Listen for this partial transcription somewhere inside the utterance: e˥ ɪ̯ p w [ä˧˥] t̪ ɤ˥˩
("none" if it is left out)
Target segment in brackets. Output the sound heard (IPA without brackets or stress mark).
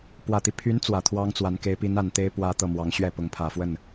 ä˥